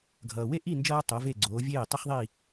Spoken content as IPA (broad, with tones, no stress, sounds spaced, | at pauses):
ɡʱ ʌː˩ w e˥˩ ʔ i˥˩ n d͡ʒ ʌː˧ tˤ o˩˥ v e˥˩ ɡ͡ǀ oː˩˥ vʲ eː˥˩ tˤ ɯ˥ χ ðˤ i˥˩